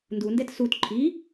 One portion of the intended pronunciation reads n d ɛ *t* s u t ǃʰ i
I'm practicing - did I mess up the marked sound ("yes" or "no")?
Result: no